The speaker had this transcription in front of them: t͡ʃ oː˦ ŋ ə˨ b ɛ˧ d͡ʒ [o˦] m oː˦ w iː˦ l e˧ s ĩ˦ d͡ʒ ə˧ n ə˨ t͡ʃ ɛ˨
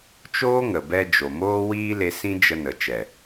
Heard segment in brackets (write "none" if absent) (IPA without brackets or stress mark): o˨